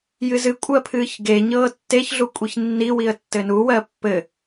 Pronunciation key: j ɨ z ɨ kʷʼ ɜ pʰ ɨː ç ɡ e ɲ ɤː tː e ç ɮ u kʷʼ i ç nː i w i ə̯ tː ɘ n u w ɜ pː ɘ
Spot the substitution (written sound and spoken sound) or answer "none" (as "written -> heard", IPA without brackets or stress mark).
none